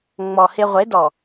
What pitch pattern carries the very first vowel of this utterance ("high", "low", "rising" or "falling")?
low